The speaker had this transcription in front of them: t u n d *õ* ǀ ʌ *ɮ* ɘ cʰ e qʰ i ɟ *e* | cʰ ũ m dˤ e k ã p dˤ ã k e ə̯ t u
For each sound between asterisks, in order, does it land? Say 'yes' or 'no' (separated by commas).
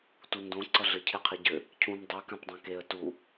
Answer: yes, yes, no